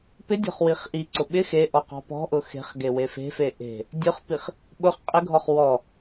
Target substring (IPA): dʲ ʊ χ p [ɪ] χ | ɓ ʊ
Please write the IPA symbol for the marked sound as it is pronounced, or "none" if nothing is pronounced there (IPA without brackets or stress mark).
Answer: i